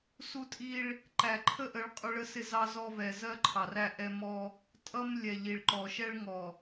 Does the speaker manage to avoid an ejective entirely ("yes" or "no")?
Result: no